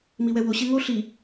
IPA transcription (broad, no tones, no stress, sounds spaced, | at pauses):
m i w ɛ w o ɕ e ŋ o ɬ i